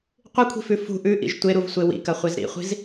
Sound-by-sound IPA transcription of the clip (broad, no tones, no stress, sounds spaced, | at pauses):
qʷ ɨ kʷʰ i̤ f ʉ f ṳ ʔ ʉ ʔ ḭ ʒ tʷ e ɾ u v sʷ e w ḭ k ɐ χʷ e z ɾ ḭ χʷ i̤ z